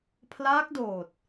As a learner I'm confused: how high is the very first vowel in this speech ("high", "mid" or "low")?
low